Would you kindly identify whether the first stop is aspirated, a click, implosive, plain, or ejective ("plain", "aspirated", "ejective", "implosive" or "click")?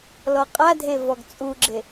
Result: ejective